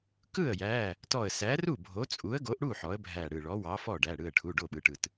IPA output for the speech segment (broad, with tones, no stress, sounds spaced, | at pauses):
k ɯ˥˩ ə̯ j æ˩˧˩ | t ɔ˧˩ ə̯ s æ˨˥ r u˥˩ bʱ o˨˥ t͡sʼ u˨˥ ə̯ ɡ o˨˥ ʔ ɽ u˥˩ ħ ɔ˨˥ ə̯ bʱ æ˧˩ ɽ ɯ˧˩ ɭ ɔ˨˥ w ɑ˨˥ f ɔ˥˩ ɖ æ˩˧˩ ɽ ɯ˧˩ ə̯ ʈʰ u˩˧˩ ɖ o˥˩ ɓ ɯ˩˧˩ ʈ ɯ˧˩ t